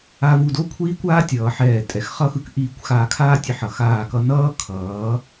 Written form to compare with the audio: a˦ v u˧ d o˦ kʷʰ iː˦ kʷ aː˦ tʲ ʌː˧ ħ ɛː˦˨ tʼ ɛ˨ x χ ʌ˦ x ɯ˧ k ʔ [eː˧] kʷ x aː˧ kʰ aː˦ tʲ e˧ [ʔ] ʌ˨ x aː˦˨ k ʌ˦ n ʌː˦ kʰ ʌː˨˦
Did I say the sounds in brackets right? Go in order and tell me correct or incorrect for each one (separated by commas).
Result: incorrect, incorrect